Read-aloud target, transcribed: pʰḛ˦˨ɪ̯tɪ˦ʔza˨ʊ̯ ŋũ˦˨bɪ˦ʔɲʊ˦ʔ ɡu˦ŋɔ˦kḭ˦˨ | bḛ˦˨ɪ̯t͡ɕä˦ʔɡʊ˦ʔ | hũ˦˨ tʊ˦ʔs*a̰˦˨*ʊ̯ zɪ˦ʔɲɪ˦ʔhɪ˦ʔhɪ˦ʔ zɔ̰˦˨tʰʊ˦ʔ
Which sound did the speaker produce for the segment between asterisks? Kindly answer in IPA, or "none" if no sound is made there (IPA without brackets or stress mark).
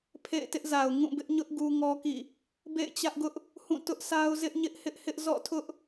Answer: a˦